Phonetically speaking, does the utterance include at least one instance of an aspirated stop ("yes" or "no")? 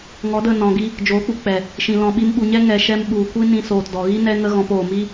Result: no